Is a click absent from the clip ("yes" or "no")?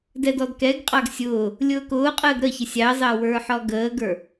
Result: yes